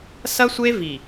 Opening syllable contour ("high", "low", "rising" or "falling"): high